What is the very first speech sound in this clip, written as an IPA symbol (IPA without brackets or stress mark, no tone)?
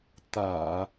t̪